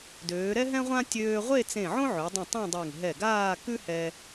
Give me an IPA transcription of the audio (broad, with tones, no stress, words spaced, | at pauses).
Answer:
døː˩˧ɾɛ˥ɦɛ̃˥ʁʷã˥ tʲøː˧ʁʷe˥˧ t͡sẽ˧˩ʕõ˥ʕø˩˧dˤɛ̃˧˩ tˤɛ̃˥˧dˤe˧˩ŋ ɦɛ˧˩ɡaː˥˧ kʉ˥hɛ˧